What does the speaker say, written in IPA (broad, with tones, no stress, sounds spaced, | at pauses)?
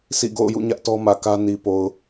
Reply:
sʰ ḭ˦˨ ɡ o̰˦˨ ʊ̯ j ṵ˦˨ ɲ ä˦ ʔ t ɔ˦ m ä˨ k ä˦ n i˨ p o˨ ʊ̯